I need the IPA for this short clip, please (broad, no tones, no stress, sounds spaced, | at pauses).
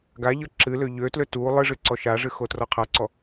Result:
ɡ a ʎ ɤ ǁ ɨ l ø ʎ ø t l ø t u lˠ ɨ ʐ ɨ ǀ ɔ ʃ a ʐ ɨ x o t r ɔ qʰ a ǀ ɔ